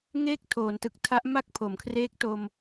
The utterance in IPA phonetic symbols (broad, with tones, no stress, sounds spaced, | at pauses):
ŋ eː˥˩ k̚ tʰ oː˩˦ n t ɯ˨˩ k̚ tʰ a˦˥ ʔ m a˥˩ k̚ pʰ o˩˦ m kʰ r eː˦˥ k̚ t o˧ m